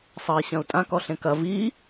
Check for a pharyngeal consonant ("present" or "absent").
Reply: absent